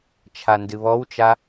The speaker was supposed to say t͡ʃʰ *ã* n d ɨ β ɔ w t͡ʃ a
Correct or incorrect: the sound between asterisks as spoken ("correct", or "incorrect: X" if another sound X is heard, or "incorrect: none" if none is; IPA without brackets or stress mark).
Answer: incorrect: a